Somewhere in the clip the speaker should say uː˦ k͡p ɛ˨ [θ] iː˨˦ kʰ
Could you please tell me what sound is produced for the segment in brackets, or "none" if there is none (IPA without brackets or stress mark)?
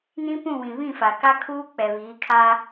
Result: β